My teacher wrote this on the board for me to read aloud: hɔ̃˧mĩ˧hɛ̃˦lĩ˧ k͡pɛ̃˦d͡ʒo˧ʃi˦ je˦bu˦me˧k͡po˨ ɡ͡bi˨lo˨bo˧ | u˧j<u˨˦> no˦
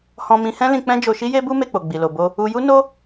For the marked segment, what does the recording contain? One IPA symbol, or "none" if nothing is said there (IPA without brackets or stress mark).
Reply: u˦